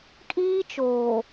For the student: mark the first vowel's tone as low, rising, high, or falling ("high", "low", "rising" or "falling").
high